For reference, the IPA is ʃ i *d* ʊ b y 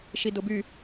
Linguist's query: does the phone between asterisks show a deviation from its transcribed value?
no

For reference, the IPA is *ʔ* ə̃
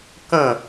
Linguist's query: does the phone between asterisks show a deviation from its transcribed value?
yes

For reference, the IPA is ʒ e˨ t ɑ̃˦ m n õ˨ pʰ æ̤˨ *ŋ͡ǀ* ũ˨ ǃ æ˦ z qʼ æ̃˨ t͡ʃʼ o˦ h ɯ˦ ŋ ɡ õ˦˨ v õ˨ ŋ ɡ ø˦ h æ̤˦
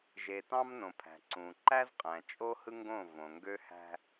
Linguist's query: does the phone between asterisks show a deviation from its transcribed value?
yes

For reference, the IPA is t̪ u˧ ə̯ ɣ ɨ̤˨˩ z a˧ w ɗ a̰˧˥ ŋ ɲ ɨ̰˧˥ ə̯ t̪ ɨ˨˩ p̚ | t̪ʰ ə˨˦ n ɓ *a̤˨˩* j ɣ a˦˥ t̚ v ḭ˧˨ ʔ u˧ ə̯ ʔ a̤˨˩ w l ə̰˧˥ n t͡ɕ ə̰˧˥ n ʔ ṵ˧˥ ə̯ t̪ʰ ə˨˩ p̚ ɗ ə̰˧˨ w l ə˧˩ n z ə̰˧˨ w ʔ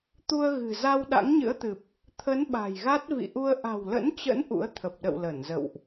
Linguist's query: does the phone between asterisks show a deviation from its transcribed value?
no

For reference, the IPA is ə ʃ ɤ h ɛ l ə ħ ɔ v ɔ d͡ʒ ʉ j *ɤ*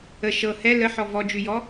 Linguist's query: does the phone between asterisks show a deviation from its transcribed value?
yes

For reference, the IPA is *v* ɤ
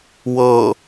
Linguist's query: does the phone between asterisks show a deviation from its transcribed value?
yes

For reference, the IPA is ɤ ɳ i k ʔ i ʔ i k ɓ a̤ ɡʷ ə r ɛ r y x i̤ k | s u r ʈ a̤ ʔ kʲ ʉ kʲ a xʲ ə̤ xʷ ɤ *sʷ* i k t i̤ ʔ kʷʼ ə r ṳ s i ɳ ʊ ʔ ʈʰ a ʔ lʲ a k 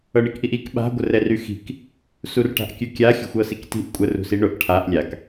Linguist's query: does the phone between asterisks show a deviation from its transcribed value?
yes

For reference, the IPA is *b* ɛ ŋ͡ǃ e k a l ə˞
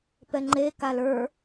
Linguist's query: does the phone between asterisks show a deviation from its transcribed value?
yes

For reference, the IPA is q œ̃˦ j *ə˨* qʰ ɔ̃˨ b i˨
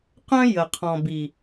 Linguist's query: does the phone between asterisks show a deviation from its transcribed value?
no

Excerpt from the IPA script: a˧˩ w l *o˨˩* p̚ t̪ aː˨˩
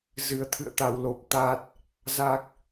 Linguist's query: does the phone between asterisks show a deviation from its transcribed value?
no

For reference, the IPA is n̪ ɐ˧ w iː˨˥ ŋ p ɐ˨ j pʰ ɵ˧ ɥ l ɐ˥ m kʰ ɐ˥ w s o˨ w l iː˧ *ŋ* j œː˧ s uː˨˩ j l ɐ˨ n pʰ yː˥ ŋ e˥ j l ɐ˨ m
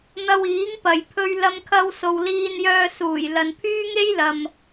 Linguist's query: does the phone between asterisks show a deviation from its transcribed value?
yes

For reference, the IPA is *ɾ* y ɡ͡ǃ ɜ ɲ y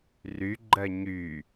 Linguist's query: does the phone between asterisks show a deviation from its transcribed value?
yes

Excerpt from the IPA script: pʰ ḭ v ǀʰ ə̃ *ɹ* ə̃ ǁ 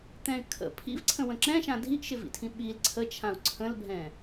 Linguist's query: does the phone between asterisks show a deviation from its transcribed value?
yes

